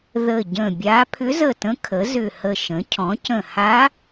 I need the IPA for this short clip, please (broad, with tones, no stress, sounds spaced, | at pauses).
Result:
ð ə˧˩ ɟ ə̃˧˩ bʲ a˧˥ pʰ ʏ˧˥ z ə˧˩ t ə̃˧˥ kʰ ə˩˥ z ʏ˧˩ h ə˧˩ ʃ ə̃˩˥ cʰ ɔ̃˩˥ c ə̃˧˩ h a˧˥